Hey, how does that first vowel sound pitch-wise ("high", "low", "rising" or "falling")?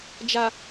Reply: low